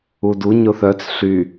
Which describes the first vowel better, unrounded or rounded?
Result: rounded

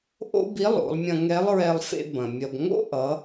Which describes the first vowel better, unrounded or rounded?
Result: rounded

